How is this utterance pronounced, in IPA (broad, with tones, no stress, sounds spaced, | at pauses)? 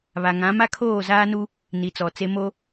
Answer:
β a˨ ŋ ã˨˦ m a˦ kʰ oː˦˨ z aː˦ n u˦ | n i˨ t͡s ɔ˨ t͡s e˦ m o˦